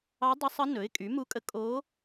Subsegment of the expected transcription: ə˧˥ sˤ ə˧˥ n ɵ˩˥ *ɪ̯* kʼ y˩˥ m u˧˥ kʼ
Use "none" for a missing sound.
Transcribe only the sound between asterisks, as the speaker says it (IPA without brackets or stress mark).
ɪ̯